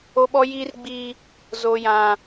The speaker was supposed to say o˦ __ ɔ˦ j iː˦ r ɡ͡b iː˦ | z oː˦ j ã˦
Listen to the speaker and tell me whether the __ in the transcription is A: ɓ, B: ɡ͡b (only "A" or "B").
A